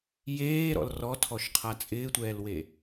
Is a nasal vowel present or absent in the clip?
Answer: absent